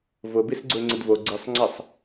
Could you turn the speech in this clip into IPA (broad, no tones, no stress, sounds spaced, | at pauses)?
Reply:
v ʊ b i s ɡ͡ǀ u ɪ̯ ŋ͡ǀ ɪ d v o ɡ͡ǀ i sˤ ŋ͡ǀ ɛ sˤ